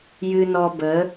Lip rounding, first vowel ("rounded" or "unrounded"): unrounded